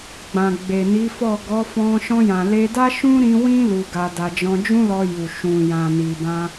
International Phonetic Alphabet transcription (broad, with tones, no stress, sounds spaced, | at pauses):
ɡ͡b ã˨ ɡ͡b e˨ n i˨˦ f ɔ˦˨ ɡ ɔ˨˦ f ɔ̃˧ ʃ ɔ̃˧ j ã˨ l e˧ d a˦ ʃ ũ˦ ɾ ĩ˧ w ĩ˦ l u˧ ɡ a˧ d a˧ d͡ʒ ɔ̃˧ d͡ʒ ũ˦ l ɔ˧ j u˨ ʃ ũ˨ j ã˨ n i˨ b ã˧